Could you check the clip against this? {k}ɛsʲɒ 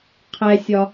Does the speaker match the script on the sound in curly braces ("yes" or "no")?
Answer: no